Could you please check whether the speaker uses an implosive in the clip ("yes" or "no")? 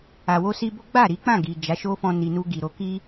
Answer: no